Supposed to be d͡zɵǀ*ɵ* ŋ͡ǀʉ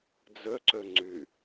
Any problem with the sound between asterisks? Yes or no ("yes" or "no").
no